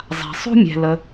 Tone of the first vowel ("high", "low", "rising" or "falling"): low